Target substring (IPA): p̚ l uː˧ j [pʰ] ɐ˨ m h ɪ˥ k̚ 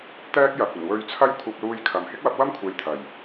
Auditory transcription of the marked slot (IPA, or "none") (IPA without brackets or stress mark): kʰ